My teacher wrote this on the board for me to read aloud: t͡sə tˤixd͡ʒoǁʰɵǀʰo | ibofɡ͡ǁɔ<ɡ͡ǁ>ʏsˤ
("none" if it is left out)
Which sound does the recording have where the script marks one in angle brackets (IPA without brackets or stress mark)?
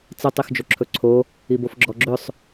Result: ɡ͡ǁ